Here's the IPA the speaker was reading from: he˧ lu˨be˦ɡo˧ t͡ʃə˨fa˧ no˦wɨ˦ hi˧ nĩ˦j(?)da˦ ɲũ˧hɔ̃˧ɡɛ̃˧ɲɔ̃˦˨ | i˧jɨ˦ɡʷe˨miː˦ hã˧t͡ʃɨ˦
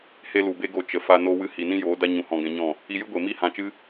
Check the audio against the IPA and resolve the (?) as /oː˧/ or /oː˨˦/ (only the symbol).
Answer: oː˨˦